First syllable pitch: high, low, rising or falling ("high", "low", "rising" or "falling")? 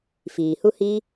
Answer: low